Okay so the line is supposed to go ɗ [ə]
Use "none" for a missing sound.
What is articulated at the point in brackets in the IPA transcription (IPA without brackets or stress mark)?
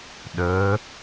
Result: ə